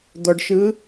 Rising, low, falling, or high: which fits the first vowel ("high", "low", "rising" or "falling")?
low